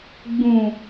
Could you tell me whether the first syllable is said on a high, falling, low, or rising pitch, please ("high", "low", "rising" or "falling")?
low